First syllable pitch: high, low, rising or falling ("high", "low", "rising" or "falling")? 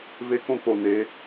high